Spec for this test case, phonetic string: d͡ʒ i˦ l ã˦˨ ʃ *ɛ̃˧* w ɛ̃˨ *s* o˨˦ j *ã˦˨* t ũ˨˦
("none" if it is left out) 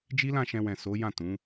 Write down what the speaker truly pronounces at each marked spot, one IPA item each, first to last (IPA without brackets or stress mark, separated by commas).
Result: ɛ̃˧, s, ã˦˨